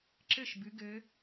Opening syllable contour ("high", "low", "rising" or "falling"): falling